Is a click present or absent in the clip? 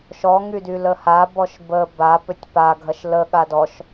absent